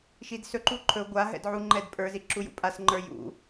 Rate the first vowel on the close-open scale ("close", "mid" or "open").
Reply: close